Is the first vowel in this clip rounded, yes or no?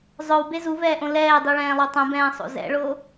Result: yes